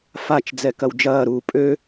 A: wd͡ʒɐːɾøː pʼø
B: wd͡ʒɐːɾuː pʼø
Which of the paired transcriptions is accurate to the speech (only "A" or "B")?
B